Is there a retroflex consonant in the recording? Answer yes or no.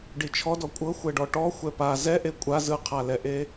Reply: yes